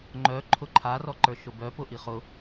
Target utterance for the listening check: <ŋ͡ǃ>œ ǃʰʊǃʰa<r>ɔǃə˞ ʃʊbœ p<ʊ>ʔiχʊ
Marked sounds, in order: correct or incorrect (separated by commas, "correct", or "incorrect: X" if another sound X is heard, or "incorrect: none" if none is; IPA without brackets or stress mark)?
correct, correct, correct